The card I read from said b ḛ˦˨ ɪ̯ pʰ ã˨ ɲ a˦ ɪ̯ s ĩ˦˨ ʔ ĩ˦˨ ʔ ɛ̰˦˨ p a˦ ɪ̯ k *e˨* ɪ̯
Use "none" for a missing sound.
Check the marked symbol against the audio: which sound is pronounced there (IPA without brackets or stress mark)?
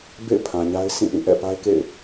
ḛ˦˨